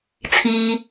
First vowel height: high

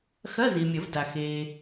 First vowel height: low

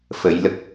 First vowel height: mid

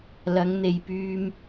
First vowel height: low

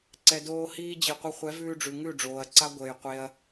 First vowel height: mid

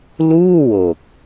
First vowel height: high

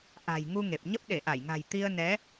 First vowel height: low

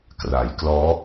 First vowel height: low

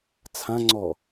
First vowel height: low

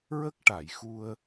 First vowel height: mid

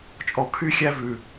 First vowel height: mid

